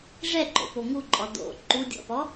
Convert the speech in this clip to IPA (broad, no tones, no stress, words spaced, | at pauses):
ʐɛǃo̰po ŋuǃʼɔ do̰ ǃudʲɔ̰pɔ